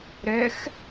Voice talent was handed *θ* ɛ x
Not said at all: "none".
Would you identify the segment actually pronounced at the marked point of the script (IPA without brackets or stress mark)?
ɾ